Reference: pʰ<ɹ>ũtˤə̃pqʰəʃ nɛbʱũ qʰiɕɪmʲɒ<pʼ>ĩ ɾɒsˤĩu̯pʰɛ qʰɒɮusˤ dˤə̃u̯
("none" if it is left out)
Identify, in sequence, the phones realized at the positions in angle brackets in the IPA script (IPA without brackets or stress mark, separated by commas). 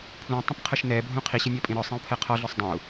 l, pʼ